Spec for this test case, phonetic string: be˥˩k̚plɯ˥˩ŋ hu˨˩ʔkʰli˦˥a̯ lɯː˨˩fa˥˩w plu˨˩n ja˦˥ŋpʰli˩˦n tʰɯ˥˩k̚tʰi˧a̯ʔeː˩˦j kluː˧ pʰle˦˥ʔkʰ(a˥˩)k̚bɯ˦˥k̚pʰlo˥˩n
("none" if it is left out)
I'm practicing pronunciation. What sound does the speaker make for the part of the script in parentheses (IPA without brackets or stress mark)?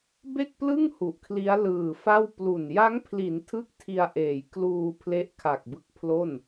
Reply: a˨˩